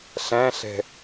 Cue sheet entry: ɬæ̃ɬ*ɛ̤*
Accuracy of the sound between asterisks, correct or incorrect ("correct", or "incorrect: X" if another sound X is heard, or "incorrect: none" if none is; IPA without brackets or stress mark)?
correct